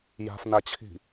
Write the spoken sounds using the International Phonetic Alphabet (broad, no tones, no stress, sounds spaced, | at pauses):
j a̤ f n a t͡ɕʰ i̤